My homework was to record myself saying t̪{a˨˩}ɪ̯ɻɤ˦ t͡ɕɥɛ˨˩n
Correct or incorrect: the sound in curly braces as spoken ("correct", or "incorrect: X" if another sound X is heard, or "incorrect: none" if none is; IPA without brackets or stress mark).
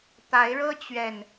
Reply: incorrect: a˨˦